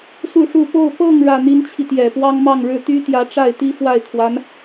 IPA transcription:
s u˥˧ ʂ u˥˧ p o˥˧ ʊ̯ p ɤ˥˧ ŋ ɻ ä˥˩ n̪ i˥ n t͡ɕʰ i˨ t̪ j ɛ˨˩ p w ɑ˥ ŋ m ɑ˥˧ ŋ ɻ ɻ̩˥˩ t̪ y˥ t̪ j ä˧˥ ʈ͡ʂ a˥˩ ɪ̯ t̪ i˥ f w a˥˩ ɪ̯ kʰ w a˧˥ n

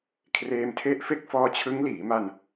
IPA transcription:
kʰ r eː˧ m tʰ e˦˥ ʔ f e˦˥ k̚ f ɔː˧ t͡ɕʰ ɯ˦˥ ŋ l iː˩˦ m a˧ n

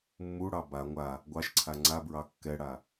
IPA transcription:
mː u ɽ ɑ b a ŋʷ a | ɡʷ ɑ ʃ ǀʰ a ŋ͡ǀ a b ɹ ɑ kː ɛ ɽ a

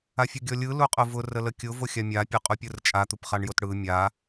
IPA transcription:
a fʲ ʊ ɡʲ ɔ lʲ ɯ l u qʼ ʊ v ʊ r ə l ə kʲ ʊ v o xʲ a mʲ a pʲ o qʼ u pʲ ɯ r t͡ʃʼ a t̪ u p χ a ɳ j o t ɽ ɯ mʲ a

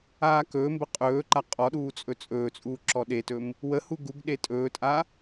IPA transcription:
aː k ɵː m b ə qʼ ɵː ǃ a qʼ ɔ ɗ uː t͡sʼ ɵ t͡sʼ ɵː t͡sʼ uː ǁ ɔ ɗ e t ɵ m | w ə h u ɡ u ɡ ɗ e tʼ ɵː tʼ a

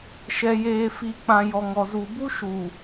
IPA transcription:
ʃ ɛ˨ j eː˨ f i˨ k͡p ã˨ j ɔ˨ ŋ ɔ˨ z u˨ b u˦ ʃ u˨

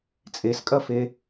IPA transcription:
t͡sʼ e s kʼ ɐ f e

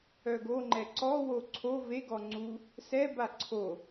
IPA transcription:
œ ɡ o ŋ͡ǃ ɛ ǀ ɔ w o ǀʰ o v e ɡ ɔ ŋ͡ǀ u | s ɛ b a ǀʰ o

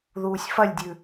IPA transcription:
ð uː sʲ f ɐ lʲ dʲ ʉ

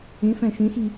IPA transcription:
ẽ f æ̃ ʃ ẽ x i

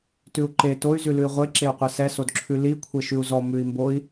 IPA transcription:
t ʉ u̯ ǃ e t o y̯ z ʉ l ʉ i̯ ʁʷ e ǁ e u̯ qʷ ɛ s ɛ s o d ǁʰ ʉ l i kʷʰ e ʃ ʉ u̯ z ɔ m ʉ i̯ m b o i̯

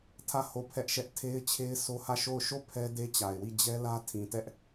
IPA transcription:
tʰ ä˦˨ h o˦˨ pʰ ɛ˦ ʔ ʃ ɛ˦ ʔ tʰ e˦ ɪ̯ t͡ɕʰ e˦ ɪ̯ s o˦ h ä˦˨ ʃ o˦˨ ʊ̯ ʃ o˦˨ pʰ ɛ˦ d e˦ t͡ɕ a˨ ɪ̯ w i˦˨ d͡ʑ ɛ˦ l ä˦ tʰ ĩ˨ t ɛ˦ ʔ

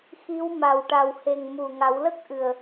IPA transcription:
x i˧˥ w m a˨˩ w ʈ a˨˩ w h e˨˩ ŋ m u˨˩ ŋ a˨˩˦ w l ə˦˥ k̚ ʔ ɨ˨˩ ə̯

